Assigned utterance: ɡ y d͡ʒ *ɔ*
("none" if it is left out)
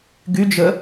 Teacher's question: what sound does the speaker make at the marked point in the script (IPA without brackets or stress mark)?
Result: ə